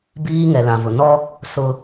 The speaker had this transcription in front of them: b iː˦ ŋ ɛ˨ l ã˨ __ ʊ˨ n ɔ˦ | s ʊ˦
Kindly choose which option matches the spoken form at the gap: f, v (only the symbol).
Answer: v